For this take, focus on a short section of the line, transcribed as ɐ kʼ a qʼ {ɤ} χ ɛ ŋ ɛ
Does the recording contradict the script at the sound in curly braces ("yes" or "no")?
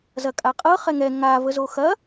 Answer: no